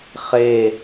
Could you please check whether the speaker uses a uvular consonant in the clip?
yes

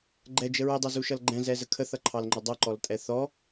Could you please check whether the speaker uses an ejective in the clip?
yes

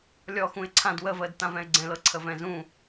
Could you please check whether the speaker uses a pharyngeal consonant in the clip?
no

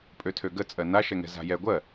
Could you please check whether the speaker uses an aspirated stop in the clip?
yes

